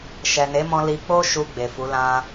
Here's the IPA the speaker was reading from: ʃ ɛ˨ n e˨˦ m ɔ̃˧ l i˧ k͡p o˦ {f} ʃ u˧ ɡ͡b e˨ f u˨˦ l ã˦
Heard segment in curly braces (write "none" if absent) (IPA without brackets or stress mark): none